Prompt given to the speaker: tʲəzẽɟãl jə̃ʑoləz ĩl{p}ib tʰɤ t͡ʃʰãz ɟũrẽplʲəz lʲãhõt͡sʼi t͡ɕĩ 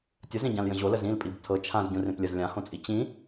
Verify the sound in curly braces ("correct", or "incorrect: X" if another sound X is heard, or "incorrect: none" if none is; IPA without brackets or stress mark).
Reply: incorrect: pʼ